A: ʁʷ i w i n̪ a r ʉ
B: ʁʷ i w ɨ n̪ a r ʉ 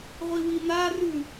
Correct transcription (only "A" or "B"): A